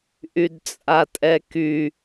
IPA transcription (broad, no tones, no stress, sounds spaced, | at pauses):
ʔ y d t͡sʼ a tʼ ɛ k y